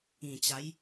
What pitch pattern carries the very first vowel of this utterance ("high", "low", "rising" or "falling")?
low